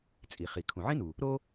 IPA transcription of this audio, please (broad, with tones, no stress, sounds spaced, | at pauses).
t͡sʼ i˩ χ i˩ kʰ ũ˩ ʕ ĩ˥ n u˩ | ɾ o˥